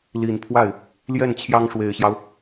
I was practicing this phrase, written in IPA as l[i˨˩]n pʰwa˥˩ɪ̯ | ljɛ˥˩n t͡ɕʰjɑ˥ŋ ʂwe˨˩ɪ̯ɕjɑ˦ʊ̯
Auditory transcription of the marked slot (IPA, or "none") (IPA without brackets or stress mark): i˨˩